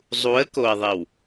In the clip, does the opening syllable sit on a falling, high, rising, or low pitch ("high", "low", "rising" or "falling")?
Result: rising